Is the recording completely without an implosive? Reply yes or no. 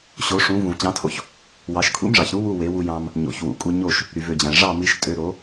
yes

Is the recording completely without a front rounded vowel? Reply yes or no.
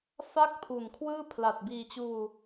yes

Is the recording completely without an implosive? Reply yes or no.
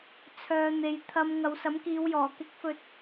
yes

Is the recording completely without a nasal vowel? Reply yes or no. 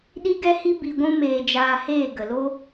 no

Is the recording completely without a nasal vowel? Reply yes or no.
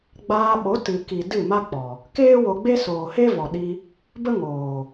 yes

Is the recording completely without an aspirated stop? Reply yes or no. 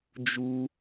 yes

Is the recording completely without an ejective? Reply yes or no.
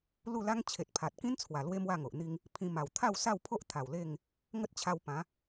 yes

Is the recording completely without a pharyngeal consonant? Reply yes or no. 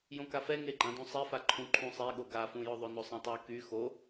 yes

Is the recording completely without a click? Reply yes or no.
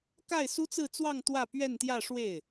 yes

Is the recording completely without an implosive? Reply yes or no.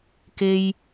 yes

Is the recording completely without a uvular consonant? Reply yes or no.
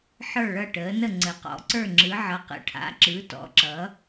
no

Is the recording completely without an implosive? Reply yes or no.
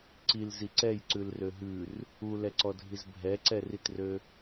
yes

